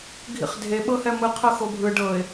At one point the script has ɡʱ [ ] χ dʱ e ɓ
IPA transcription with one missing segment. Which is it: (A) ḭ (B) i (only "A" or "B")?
A